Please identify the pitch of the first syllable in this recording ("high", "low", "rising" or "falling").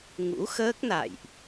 rising